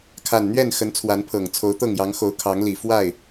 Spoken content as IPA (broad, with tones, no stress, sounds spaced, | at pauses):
kʰ a˨˩ n n̪ ɥ ɛ˥˨ n x ə˨˦ n t͡sʰ w a˨˦ n pʰ ɤ˨˩ ŋ t͡sʰ o˨˦ ʊ̯ t̪ ɤ˥˨ ŋ j ɑ˨˦ ŋ x o˨˦ ʊ̯ kʰ ɑ˨˦ ŋ l i˨˩ f w a˥˨ ɪ̯